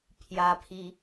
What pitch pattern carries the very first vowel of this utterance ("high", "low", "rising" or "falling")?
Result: rising